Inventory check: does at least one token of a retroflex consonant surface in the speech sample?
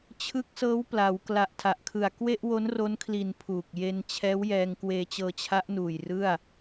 no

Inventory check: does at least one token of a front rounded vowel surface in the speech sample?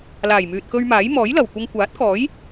yes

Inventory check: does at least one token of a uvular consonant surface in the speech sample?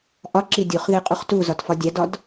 yes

